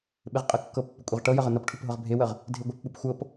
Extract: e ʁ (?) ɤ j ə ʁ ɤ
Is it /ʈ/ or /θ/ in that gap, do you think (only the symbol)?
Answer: ʈ